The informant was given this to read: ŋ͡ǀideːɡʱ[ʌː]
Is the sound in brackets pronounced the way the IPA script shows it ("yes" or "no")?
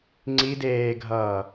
yes